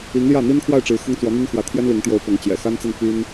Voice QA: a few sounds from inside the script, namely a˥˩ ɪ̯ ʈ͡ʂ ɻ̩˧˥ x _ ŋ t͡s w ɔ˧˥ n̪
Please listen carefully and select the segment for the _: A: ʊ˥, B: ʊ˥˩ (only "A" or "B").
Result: A